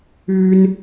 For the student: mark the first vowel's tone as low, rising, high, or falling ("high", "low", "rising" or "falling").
high